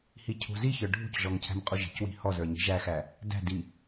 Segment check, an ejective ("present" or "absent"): present